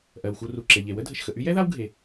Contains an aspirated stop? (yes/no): no